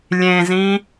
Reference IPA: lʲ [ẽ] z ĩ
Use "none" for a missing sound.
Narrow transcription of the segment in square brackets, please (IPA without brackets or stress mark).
ẽ